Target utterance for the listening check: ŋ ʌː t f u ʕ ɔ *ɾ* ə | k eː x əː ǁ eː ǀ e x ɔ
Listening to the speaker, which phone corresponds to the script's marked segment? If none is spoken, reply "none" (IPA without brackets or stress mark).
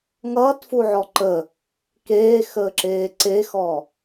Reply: ǃ